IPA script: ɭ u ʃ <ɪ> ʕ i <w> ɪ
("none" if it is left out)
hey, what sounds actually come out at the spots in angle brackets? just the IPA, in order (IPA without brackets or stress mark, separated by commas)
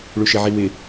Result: ɪ, w